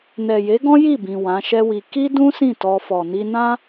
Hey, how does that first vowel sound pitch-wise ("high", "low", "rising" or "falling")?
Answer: low